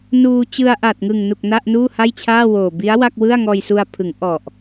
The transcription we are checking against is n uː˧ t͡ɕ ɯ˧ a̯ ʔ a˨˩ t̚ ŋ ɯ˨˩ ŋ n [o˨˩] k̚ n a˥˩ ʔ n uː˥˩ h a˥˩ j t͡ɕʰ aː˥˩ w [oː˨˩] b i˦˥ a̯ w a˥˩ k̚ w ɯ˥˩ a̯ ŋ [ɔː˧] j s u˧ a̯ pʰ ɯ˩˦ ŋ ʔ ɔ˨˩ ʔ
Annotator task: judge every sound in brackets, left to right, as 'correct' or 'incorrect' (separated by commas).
incorrect, correct, correct